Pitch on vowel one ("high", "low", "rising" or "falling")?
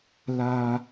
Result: low